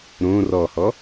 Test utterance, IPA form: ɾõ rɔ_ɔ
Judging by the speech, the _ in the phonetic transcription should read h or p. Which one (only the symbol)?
h